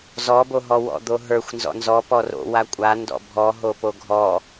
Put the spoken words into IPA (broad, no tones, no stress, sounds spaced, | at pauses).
z ɔ b o ɦ ɔ w ɔ̰ d̪ o ɦ ə˞ xʷ n z ɔ̰ n z ɔ p ɔ r o̰ w a kʷʼ a n d ɔ̰ bʱ ɔ ɦ o p o ɡʱ ɔ